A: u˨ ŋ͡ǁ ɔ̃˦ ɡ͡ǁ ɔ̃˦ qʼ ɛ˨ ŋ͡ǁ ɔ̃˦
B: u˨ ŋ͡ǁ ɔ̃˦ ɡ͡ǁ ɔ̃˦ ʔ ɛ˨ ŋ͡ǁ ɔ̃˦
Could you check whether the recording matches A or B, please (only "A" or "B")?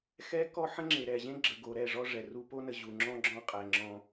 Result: A